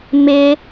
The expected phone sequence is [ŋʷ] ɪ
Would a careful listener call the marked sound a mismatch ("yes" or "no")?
yes